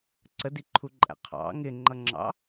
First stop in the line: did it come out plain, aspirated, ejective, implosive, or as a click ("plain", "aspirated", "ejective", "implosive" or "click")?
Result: click